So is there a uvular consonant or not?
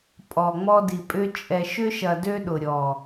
no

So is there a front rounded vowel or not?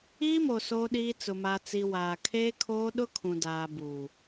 no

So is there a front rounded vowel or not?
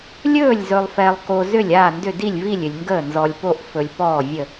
yes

